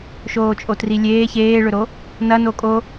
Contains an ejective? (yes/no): yes